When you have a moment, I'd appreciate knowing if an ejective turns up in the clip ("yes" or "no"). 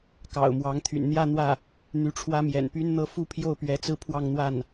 no